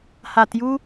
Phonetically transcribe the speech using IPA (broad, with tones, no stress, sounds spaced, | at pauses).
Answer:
h a˨ t j u˦